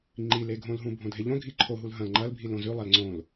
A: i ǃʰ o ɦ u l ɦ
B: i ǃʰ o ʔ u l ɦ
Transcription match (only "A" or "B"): A